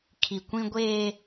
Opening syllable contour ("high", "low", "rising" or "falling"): low